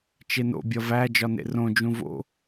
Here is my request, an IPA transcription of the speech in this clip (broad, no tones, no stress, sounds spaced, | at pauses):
t͡ʃ e n o̰ bʲ ɒ v æ d͡ʒ ɒ n ḛ r õ d͡ʒ ũ v o̰